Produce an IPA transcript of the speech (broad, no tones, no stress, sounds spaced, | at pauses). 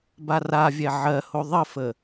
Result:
b a r a vʲ ɛ ʕ ɜ h o ðˤ ə f ə